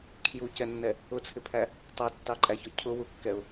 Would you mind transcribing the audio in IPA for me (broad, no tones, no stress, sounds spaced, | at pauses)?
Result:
kʰ j u c ɛ nː ɛ | ʊ t͡sʰ ɪ pʰ æ | tˤ ɛ tː ɑ ǃʼ æ ç ɔ cʰ ʊ w u kː ɛ ʊ̯